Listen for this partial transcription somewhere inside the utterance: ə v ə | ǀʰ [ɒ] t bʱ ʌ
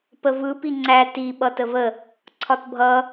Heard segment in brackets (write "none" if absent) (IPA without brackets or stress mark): ɒ